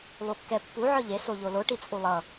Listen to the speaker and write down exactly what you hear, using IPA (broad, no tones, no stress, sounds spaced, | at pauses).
lˠ u kː ɛ pː u ʕ ɯ ʎ e s o ʎ o l o ʈ i t͡sʼ u lˠ ʌ